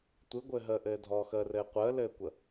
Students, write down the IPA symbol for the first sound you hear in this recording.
tʷ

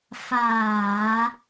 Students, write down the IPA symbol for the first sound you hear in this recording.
f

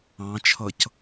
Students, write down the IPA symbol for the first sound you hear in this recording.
ɑ̃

